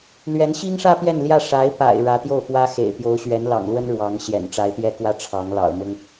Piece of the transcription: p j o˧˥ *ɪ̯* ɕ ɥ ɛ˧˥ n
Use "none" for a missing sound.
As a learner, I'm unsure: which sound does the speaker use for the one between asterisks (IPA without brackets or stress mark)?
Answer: ʊ̯